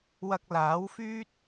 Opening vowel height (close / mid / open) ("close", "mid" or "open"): open